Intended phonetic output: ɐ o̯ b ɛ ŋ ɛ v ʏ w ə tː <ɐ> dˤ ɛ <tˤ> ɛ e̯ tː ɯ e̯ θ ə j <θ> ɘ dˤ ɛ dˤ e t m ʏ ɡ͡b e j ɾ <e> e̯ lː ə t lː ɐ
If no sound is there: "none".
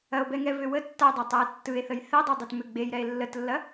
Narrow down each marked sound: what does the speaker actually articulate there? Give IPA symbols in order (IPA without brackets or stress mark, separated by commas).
a, tˤ, θ, ɛ